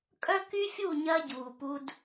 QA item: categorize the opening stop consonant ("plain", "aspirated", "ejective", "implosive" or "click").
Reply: ejective